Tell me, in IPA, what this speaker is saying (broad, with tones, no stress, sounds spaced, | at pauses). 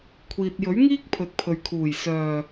kʷʰ iː˨ t̚ j ɵ˨˥ ɥ ŋ iː˥ k̚ pʰ ɵ˨˥ t̚ pʰ ɵ˨ ɥ kʰ uː˨˩ j s œː˨˩